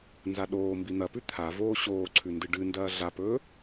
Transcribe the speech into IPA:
n z a ɗ oː m b i n̪ ɐ p ʉ t̪ʰ a v oː ɕ oː ǀʰ ʉ n d ɨ ɖ ɨ n d ɐː ɮ a p ɵː

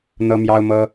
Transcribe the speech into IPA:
n̪ ɤ˥ m j ɑ˥ ʊ̯ m ɤ˥

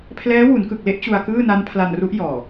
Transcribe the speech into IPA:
pʰ l ɛː˦˥ w u˩˦ n k ɯ˨˩ k̚ l e˦˥ ʔ t͡ɕ u˧ a̯ k ɯː˥˩ n a˦˥ n pʰ l a˧ n r u˦˥ ʔ j ɔː˨˩

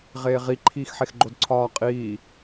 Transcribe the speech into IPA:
ʁ eː ʁ i ǃʰ iː x ħ e x ɡ͡ǃ o d ǀʰ ɒː qʼ iː

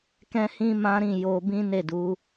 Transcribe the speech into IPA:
k ɛ̃˦ h ĩ˦ m ã˦ ɾ ĩ˦˨ j o˧ b ĩ˦ n e˦˨ d u˨˦

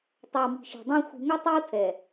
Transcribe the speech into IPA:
tˤ ɛ˨ w m i̤˨ ʃ e̤˨ dˤ ã˦ xʷ i̤˨ ŋ ʌ˦ tˤ e˦ w tʰ ɛ˨

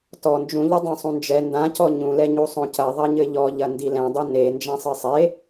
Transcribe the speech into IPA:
t ɔ n d͡ʒ ũ ʎ ɐ dˤ õ sˤ ũ n d͡ʒ ɛ n d ã c ɔ ɲ ũ l ɛ ɲ u sˤ õ c ɐ ðˤ ɐ ɲ ɘ ʎ ɔ ʎ ɐ n d i l ɛ̃ dˤ i n e n d͡ʒ ã sˤ ɘ sˤ e

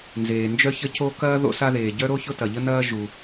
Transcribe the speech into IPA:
n z eː˩ n d͡ʒ œ˥ ç ə˥ c o˥ k ɐː˥ ð o̰˥ s a˥ ð eː˩ ɟ œ˥ ɾ o˥ ç ʊ˥ t ɐ˩ ʎ ə˥ n ɐː˥ ʒ u˩

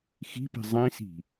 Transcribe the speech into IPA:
x i̤ p i̤ zˤ ĩ s i̤

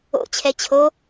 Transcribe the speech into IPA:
o̰ t͡ɕʰ ɛ t͡ɕʰ o

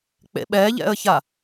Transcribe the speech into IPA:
k͡p ḛ ɓ ɛ ʎ ɛ̰ ə̯ ç a

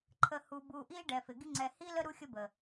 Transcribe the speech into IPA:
ǃʰ ə˧ h u˧ b u˧ ʔ i˦ ɖ ɛ˨ f ɪ˨ ɡ i˦ ŋ͡ǀ ɛ˧ h i˦ l ə˦ ɾ u˦ xʲ ə˦ b ə˨

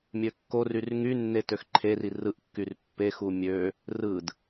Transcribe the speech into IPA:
mʲ ø kː o r y r ŋ y nː e t ø x ǃʰ e r i r ɯ ʔ kː y r pː e x u mʲ ø | r ɯ d

